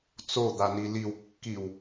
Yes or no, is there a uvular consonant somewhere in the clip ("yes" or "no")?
no